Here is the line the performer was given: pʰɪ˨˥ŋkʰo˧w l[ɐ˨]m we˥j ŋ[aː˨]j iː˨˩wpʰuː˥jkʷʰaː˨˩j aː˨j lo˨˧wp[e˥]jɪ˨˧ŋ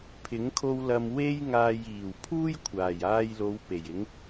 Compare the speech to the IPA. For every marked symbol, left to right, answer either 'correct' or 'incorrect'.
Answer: correct, correct, incorrect

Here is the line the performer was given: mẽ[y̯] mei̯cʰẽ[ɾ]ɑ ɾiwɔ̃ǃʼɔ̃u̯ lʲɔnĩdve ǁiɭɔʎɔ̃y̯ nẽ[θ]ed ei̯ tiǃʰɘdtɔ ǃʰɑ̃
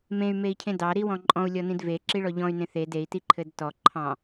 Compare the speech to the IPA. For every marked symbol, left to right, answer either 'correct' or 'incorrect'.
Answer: correct, incorrect, correct

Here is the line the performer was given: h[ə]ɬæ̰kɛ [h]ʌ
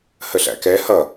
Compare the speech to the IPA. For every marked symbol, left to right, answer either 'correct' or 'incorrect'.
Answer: correct, correct

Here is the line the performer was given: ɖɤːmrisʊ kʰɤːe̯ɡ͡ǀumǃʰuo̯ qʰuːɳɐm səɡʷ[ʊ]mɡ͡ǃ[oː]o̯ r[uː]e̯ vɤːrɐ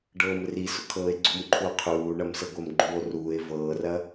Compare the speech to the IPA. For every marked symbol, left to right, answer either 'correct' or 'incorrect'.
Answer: incorrect, incorrect, correct

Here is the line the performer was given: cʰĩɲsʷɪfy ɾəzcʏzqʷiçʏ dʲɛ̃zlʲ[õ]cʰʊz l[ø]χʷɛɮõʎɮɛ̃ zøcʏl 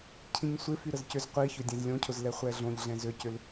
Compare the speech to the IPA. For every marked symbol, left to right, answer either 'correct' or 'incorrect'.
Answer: correct, incorrect

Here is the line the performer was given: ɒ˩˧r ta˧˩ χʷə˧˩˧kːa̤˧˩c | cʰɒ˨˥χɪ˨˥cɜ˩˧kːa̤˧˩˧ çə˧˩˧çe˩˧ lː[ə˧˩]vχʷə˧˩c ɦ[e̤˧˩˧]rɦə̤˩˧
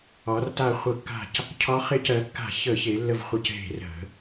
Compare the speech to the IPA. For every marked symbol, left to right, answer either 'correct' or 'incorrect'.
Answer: correct, correct

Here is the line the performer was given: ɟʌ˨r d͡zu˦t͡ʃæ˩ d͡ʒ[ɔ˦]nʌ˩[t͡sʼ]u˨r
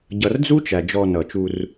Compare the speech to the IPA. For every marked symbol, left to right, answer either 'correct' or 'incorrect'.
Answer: incorrect, incorrect

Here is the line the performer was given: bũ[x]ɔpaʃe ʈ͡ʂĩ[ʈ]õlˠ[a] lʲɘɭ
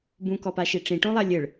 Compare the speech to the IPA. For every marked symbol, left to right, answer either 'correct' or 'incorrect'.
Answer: incorrect, correct, correct

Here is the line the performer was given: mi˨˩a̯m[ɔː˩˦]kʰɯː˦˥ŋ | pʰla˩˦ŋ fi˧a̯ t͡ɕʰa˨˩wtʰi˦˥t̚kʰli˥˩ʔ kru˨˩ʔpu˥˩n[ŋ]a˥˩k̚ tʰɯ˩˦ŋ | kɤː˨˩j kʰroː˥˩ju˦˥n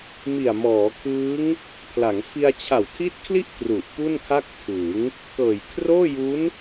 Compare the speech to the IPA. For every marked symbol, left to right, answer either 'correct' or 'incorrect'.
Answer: correct, incorrect

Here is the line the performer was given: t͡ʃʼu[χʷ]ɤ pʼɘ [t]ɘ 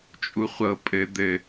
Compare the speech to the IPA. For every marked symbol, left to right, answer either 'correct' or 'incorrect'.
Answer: correct, incorrect

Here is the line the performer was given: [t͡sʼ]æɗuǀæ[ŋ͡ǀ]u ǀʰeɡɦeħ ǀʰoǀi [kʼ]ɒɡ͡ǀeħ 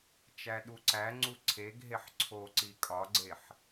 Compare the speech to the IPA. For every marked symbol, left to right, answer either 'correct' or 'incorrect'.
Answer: incorrect, correct, correct

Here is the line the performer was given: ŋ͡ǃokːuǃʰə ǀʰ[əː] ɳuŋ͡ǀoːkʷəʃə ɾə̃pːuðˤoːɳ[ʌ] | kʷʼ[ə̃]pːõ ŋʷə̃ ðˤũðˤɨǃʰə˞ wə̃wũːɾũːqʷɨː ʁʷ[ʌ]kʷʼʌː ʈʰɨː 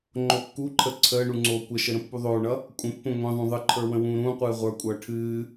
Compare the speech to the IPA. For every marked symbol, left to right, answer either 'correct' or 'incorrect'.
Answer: correct, correct, correct, incorrect

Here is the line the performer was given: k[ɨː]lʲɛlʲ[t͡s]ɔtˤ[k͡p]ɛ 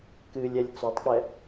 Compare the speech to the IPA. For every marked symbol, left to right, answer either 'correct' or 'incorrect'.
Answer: correct, correct, correct

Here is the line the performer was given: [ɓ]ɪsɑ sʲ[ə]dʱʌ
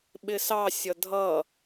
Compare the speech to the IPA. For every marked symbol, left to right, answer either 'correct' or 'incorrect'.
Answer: correct, incorrect

